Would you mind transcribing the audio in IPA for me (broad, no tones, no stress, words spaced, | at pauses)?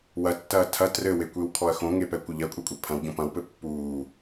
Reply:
wɐtːɐː tʰɐ trɘwekʷewkʰɔɐ̯ xõŋepɛkʷɘ ʎɐkʷʼɛkʷʼe pʰɐ̃wɟõp ɐ̃wpɘ pːuː